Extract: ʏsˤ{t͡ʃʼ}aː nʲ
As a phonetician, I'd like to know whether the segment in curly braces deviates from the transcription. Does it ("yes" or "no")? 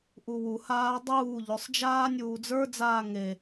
yes